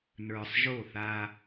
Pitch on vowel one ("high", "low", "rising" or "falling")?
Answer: low